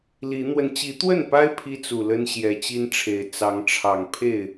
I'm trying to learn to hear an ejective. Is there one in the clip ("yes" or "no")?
no